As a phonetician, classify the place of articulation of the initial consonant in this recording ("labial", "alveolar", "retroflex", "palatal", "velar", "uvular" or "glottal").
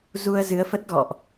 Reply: alveolar